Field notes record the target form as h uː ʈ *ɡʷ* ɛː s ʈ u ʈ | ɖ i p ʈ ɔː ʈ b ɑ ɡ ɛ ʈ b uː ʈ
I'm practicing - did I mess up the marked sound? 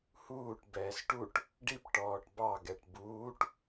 yes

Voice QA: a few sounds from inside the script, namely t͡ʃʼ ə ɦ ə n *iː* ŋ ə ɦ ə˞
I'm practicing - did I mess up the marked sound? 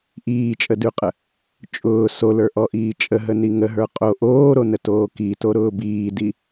yes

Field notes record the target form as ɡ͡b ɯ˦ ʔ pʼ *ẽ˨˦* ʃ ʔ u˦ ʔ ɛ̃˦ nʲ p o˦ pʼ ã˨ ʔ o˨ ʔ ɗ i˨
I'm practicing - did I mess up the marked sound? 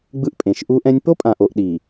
no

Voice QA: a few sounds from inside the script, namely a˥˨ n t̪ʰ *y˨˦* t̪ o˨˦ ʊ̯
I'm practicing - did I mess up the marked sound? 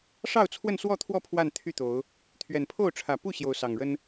yes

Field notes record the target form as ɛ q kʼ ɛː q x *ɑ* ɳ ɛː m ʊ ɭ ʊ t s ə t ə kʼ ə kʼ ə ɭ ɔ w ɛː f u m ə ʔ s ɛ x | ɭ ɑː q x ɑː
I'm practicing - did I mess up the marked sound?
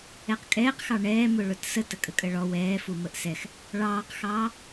no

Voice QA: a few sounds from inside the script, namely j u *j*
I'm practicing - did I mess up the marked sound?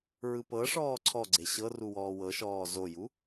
yes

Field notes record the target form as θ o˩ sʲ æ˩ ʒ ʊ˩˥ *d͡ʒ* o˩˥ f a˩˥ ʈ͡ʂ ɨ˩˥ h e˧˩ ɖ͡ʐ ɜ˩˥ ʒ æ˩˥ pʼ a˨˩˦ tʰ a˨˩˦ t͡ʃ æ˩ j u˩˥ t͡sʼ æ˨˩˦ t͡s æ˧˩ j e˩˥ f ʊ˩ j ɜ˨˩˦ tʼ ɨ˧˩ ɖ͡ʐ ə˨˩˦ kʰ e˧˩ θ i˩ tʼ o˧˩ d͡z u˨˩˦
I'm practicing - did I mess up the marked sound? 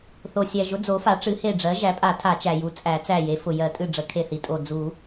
yes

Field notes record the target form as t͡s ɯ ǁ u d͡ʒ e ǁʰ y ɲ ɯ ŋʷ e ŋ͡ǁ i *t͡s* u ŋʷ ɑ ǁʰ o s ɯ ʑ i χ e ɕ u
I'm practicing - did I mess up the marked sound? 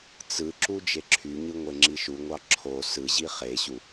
yes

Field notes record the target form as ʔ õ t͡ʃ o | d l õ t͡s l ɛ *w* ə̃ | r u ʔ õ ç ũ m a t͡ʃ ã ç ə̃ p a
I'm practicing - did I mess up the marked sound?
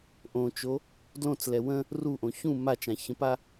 no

